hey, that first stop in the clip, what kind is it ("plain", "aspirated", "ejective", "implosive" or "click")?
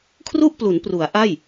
aspirated